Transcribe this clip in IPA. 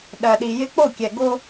ɗ ɜ˨ ɗ i˨ j ɪ˦ k͡p o˦˨ kʲ ɛ˨ ɡ o˦

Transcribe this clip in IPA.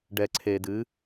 ɖ ɛ˨ ǀʰ e˨ d ɨ˨˦

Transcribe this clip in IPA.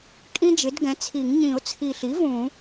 kʼ ĩ˥ d͡ʒ ɪ˩˥ d ɡ ɛ̃˩˥ t͡sʰ i˨˩˦ ŋ ɲ ĩ˨˩˦ ʊ̯ t͡sʰ i˨˩ ɬ i˩˥ v ũ˨˩˦

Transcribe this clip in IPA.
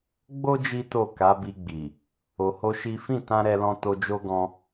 ɡ͡b o˦ d͡ʒ i˦ t o˦˨ k a˨˦ b i˧ ɡ͡b i˨ | o˧ h o˦ ʃ i˦ f ĩ˦˨ t ã˧ ɾ ɛ˧ l ɔ̃˧ t o˧ d͡ʒ o˦ ɡ ɔ̃˧

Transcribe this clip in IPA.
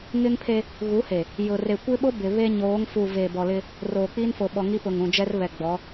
ŋ ɪ˦ ŋ pʰ e˦ | ɣ u˨˦ h e˨ | j ʊ˨ r e˨ kʷ ɪ˦ ɓ o˦ b ɪ˨ β e˦ ɲ oː˨˦ ŋ f u˨ v e˨ b ɔ˨ l ɪ˦ | r oː˨ k͡p i˦ n f o˨ ɓ ɔ˨ ŋ i˦ p ʊ˨ ŋ ũ˨ d͡ʒ ɛ˦ r β ɛ˨ ɡ͡b ɔ˨˦

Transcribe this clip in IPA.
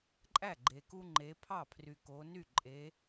ǃʼ æ˥˩ ɡ͡ǃ e˨ k u˦ ŋ͡ǃ e˨˦ pʰ ɑ˥˩ pʰ r y˨ k o˨˦ n y˥˩ ǃʼ e˨˦

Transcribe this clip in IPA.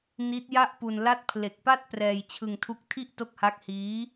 n i˦˥ t̚ j a˥˩ ʔ p u˧ n l a˥˩ t̚ pʰ l e˨˩ k̚ p a˥˩ t̚ p r ɛː˧ j t͡ɕʰ ɯ˧ ŋ tʰ u˦˥ k̚ tʰ i˥˩ ʔ t o˦˥ k̚ h a˦˥ k̚ h iː˦˥

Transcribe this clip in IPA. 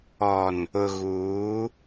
ɔ˨ n | ʊ˨ ɣ uː˨˦

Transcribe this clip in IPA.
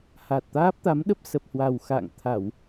h a˨˩ t̚ t̪ aː˦˥ p̚ t̪ a˨˦ m ɗ ə˦˥ p̚ s ə˨˩ p̚ h w a˨˩ w x a̰ː˧˨ ŋ t̪ʰ a˧˩˨ w

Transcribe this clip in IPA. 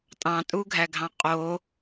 tʼ ɑ̃ tʼ u ɡʱ æ ɡʱ ɑ̃ qʼ o

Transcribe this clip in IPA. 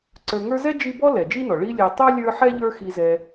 ǀ ə˞˨ ŋ ə˞˦ z ɛ˥ d͡ʒ i˦ b ɔ˥ l ɛ˩ d͡ʒ i˦ n ɔ˩ ɭ i˦ lʲ ɛ˨ tˤ ɛ˥ lʲ ə˞˦ ħ ɛ˥ ʎ ə˞˦ x i˨ z ɛ˨

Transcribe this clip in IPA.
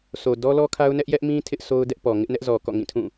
sʰ o˨ d ɔ˦ l ɔ˦ kʰ a˦ ʊ̯ n ɛ˦ ʔ j ɛ˦ ʔ m ĩ˦ tʰ ɪ˦ ʔ s o˦ ʊ̯ d ɛ˦ ʔ p ɔ˨ ŋ ɪ˦ ʔ n ɛ˦ ʔ z ɔ˨ k ɔ̰˦˨ ŋ ĩ˦˨ tʰ ũ˦˨

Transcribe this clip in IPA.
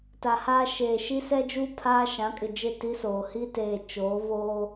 t a˨ h aː˦ ʃ eː˨ ʃ i˦ s ɛ˦ d͡ʒ uː˦ pʰ aː˦ ʃ ã˨˦ kʼ ɪ˨ d͡ʒ ɪ˦˨ t i˦ s oː˨ h i˦ t eː˨ t͡ʃ oː˨˦ β oː˦

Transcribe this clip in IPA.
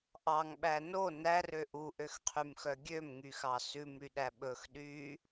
ʔ ɑ ŋ ɓ æ n o n æ r ø ʔ u ʔ ø x qʰ y m x œ ɡʲ ø m ŋ y x ɑ s ʉ m ɾ y ɗ æ ɓ ɵ x ɗ y

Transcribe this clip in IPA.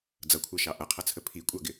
d͡z ʌ kʷʰ ɑ ʃ ɑ ʔ ʌ qʰ ʌ t͡sʰ ə pʰ i kʷʼ ɑ ɡ ɪ

